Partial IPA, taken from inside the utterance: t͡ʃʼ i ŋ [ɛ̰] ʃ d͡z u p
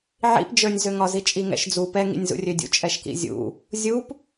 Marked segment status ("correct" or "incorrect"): correct